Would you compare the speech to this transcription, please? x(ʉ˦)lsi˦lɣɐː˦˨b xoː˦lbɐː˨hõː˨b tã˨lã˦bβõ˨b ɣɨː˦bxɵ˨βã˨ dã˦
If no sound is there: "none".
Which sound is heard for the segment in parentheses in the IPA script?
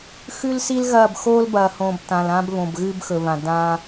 ʉ˦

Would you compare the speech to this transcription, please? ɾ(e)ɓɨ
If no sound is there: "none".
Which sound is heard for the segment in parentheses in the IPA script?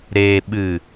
e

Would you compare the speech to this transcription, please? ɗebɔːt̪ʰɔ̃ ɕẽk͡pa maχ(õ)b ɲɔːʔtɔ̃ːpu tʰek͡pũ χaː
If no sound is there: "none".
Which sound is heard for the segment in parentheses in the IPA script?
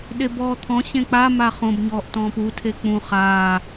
õ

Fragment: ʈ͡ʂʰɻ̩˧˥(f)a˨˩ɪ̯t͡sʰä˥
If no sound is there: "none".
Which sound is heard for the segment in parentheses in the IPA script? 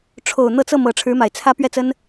m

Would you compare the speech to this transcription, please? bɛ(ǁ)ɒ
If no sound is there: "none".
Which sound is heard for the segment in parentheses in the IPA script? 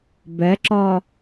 ǁ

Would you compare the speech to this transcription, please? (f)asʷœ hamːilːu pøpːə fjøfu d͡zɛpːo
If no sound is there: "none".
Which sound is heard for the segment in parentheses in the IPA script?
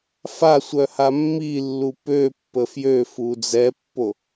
f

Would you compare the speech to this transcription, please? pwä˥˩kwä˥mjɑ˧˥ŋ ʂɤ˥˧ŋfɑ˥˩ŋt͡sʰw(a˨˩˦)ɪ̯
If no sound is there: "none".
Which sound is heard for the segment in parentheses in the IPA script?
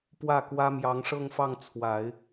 a˨˩˦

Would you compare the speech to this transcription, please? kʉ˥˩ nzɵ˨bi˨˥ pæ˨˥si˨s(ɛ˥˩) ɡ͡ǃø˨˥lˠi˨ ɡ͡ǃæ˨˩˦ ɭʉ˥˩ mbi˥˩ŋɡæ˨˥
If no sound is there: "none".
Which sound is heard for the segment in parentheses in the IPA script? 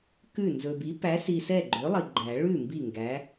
ɛ˥˩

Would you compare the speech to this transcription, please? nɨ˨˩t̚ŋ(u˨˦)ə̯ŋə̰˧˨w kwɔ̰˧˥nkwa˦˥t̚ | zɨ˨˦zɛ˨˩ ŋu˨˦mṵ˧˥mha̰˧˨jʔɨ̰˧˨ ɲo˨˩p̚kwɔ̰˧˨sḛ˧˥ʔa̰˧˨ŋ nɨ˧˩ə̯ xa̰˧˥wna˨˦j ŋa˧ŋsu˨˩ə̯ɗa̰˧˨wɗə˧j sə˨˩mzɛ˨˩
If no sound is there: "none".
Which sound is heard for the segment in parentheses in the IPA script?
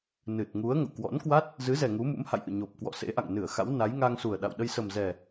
u˨˦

